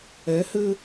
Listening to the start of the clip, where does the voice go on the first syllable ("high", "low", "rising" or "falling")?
rising